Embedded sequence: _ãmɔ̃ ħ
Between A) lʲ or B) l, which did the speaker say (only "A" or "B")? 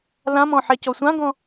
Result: B